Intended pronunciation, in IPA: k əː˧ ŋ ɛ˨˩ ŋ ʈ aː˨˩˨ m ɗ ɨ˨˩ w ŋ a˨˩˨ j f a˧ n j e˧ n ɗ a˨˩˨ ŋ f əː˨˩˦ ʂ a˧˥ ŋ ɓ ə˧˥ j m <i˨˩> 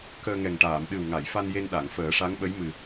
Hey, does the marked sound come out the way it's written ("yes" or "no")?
no